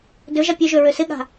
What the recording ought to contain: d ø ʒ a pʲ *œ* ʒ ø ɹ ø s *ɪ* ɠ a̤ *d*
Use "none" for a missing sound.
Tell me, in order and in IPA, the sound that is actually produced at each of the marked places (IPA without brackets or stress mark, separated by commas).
ø, ɪ, none